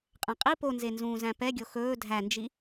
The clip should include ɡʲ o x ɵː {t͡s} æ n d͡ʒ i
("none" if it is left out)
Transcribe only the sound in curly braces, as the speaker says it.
dʱ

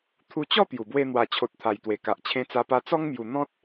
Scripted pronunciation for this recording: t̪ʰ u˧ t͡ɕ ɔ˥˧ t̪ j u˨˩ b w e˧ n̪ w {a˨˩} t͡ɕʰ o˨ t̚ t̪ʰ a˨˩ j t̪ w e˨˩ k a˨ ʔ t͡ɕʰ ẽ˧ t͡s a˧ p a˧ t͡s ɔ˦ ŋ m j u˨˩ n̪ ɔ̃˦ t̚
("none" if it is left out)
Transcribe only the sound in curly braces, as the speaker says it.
a˨˩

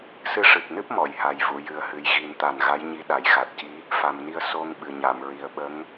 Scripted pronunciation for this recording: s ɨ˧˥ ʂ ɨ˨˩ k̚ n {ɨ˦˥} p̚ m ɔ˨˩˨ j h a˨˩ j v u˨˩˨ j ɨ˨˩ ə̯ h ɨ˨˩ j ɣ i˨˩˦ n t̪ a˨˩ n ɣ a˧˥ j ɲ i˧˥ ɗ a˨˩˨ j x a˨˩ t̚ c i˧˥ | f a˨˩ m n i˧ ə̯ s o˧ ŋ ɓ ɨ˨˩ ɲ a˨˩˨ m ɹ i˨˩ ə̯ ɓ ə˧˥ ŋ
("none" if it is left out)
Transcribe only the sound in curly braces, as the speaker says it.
ɨ˦˥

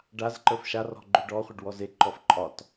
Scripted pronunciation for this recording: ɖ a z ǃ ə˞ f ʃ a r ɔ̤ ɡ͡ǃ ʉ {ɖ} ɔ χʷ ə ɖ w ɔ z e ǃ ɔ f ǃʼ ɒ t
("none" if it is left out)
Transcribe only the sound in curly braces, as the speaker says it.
ɖ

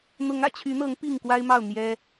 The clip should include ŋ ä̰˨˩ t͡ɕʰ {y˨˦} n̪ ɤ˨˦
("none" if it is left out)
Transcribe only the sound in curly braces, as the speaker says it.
y˨˦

